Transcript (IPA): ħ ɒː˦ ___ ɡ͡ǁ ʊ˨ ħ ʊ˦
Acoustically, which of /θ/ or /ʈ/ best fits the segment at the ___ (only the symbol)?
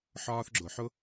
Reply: θ